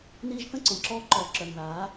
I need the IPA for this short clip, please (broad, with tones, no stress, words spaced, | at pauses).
niː˧ʒθə̃˦˨ǀõ˨ǁɔː˧ ǃɔː˨ǁœ˨n ðaː˨˦